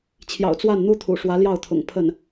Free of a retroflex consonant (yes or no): no